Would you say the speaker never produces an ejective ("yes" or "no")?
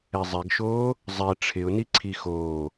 yes